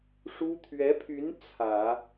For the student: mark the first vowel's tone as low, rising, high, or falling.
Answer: high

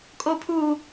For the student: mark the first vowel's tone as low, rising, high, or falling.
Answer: high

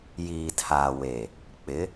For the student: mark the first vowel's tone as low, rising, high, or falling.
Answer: low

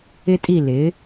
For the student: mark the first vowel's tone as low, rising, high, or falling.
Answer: high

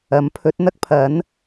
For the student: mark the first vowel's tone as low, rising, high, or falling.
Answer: rising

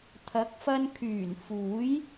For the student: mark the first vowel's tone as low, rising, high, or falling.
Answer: rising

